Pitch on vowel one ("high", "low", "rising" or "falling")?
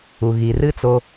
low